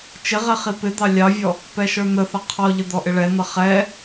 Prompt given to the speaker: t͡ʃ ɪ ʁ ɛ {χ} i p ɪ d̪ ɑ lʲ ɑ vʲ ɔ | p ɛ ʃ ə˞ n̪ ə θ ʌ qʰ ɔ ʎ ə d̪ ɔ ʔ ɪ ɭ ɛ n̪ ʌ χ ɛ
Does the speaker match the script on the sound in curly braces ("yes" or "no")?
yes